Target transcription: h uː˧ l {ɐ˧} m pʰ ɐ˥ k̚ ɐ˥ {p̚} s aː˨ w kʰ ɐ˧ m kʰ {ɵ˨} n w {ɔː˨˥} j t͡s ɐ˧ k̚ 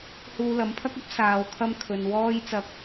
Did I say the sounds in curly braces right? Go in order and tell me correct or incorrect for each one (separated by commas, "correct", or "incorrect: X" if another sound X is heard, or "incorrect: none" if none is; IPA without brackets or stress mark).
incorrect: ɐ˨˥, correct, correct, incorrect: ɔː˥